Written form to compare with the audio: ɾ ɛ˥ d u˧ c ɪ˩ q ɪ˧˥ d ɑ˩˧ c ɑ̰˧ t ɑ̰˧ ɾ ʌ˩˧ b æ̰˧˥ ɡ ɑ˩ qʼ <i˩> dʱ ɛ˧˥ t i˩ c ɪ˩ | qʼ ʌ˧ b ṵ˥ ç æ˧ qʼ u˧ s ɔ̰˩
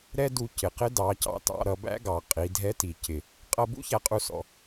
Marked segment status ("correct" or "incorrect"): incorrect